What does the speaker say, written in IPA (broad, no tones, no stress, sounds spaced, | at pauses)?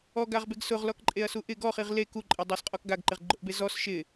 ɔ ɡ a ʁ b e ɡ s ʊ ʁ l ɔ k ǃʼ e ɐ̯ s u ʔ ɪ ɡ ɔ χ i ʁ l e k u ǃʼ ɛ dˤ a s qʼ ɔ k ɡ a ɡ ǃ ɪ ʁ ɡ͡ǃ ʊ ʔ b e z ɔ s ʃ ɪ